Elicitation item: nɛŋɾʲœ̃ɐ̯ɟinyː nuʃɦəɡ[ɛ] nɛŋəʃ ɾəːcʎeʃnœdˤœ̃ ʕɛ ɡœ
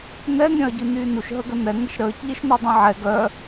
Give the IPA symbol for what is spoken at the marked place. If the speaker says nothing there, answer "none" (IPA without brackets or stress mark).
ə